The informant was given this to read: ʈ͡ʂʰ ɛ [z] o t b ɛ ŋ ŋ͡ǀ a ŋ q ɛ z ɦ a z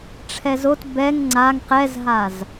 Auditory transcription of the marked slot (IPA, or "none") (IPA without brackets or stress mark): z